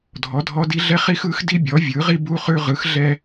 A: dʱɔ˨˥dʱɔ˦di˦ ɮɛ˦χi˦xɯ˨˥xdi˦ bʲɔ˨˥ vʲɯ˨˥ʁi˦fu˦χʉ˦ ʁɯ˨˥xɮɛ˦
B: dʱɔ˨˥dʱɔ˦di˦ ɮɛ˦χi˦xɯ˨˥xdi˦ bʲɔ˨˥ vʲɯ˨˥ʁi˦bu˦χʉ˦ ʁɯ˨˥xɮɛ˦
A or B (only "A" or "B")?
B